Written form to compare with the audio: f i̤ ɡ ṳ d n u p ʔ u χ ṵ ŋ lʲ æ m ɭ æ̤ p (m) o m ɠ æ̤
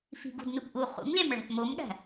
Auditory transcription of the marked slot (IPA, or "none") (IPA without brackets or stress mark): m